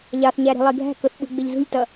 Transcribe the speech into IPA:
ʎ ɑ θ ɲ æ ɾ i̤ lˠ i ɡʱ æ̤ k ʊ θ ɓ ṳ ɡ͡b ɪ ʎ z ṳ lʲ t ʌ

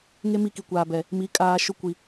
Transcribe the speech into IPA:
ŋ e˦ m i˦˨ k i˨ kʷ aː˨ b ɛ˨ | m i˨˦ kʼ aː˨ ʃ ʊ˦ kʷ i˨

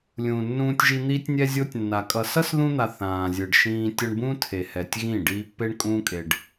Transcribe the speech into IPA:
lʲ ũː˨ nː ũː˧ tʲ ʒ i˧ n̪ iː˦ tʲ nʲ ɛ˦ zʲ o˦ tʲ nː a˨ kʼ ʌ˨ s ʌ˦ s ð ũ˧ n̪ a˨ θ ãː˨ zʲ ɯ˨ ɖ ʃ ĩː˧ tʲ ʌ˧ ɳ b ũː˦ tʰ e˨ h ɛ˨ tʲ ɣ ĩ˦˨ ɖ iː˧ pː e˦ ɳ kʼ ũː˦ kʼ e˧ ɖ

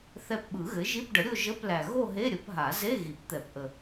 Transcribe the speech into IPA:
θ ɛ˧ p ɓ ɯ˨˩˦ ɣ ɘ˩˥ ʒ i˧˥˧ p ɖ ə˩˥ ɾʲ o˥˧ ʒ ə˧˥˧ p l æ˨˩ ɣ o˥˧ ɦ e˧˥˧ ɾʲ ə˩˥ p ɦ a˨˩˦ z e˧˥˧ ɣ i˨˩˦ p t̪ ɛ˨˩˦ p ʔ ə˨˩

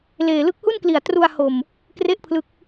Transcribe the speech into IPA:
l eː˨˩ l ɯ˥˩ k̚ h u˥˩ n k l i˨˩ a̯ t r u˧ a̯ h o˨˩ m | k r e˥˩ ʔ pʰ l ɯ˦˥ k̚

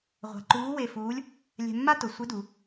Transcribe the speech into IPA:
ʁʷ a̤˧ ǃ uː˧˥ w e˧ f uː˧˥ lʲ | lʲ ɛ̤˧ mː a˥ t ʊ˩˧ sʷ ɪ˧˥ d u˩˧

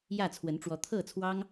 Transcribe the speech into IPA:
j ä˥˨ t͡sʰ w ə˨˦ n ʈ͡ʂ w ɔ˨˦ t̪ʰ ɤ˥˨ t͡sʰ w ɑ˦ ŋ

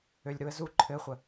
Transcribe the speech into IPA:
ø lʲ ɾ u ə̯ z u ǃʰ ɘ χʷ ə

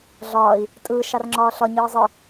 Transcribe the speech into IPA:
ɮ ɒː i̯ | tʼ ɯː ʃ ɑ r ŋ͡ǁ ɒː ɬ ɒ ɲ ɯː zˤ ɯ

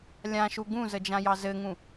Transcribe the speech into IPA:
lʲ ã ʃ u ɡ ũ z ə d͡ʒ ã j ɑ z ɘ ŋ ũ

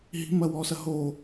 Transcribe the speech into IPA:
ɦ i̤ m ɐ w ɔː s ɐ ɦ oː

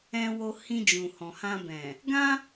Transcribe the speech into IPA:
ɛ̃˧ w o˧ h ĩ˧ d͡ʒ ũ˨ h ɔ̃˨ h ã˧ b ɛ̃˨ | ɡ ã˦

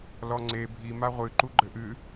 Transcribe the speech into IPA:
l ɔ ŋ͡ǀ e bʱ i m a ʁʷ ɨ ǃ u ɡ͡ǃ ɘ ʔ ɨ

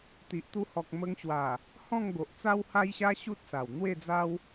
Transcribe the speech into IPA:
t̪ i˨ ʔ t̪ u˧ h ɔ˨ k̚ m ə˧ ŋ ɕ w a˨˩ | h ɔ̃˥˧ ŋ ɡ o˨ ʔ t͡s a˦ w h a˦ j ɕ a˦ ɕ u˦ t̚ s a˨˩ w n̪ w e˥˧ d͡z a˦ w

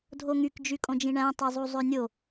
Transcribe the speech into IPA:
dʱ o ŋ y k d͡ʒ y kʼ õ d͡ʒ ĩ ɳ æ̃ tˤ e zˤ u zˤ ø nʲ o

